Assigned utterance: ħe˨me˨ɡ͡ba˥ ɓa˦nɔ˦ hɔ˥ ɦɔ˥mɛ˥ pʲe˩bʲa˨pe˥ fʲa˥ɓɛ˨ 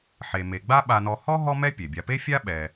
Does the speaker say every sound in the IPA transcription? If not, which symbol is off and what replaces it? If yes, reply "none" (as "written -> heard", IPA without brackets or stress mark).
none